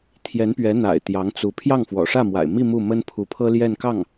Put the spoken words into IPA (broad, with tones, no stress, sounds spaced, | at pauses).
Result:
t̪ʰ j ɛ˧˥ n p ɥ ɛ˧˥ n̪ a̰˨˩ ɪ̯ t̪ j ɑ˧˥ ŋ t͡s u˧˥ pʰ j ɑ˥˩ ŋ f w ɔ̰˨˩ ʂ ä˥˩ m w a̰˨˩ ɪ̯ m i˥˧ m u˥˩ m ə˥ n pʰ u˧˥ pʰ ɤ˥ l j ɛ˥˧ n k ɑ˥˩ ŋ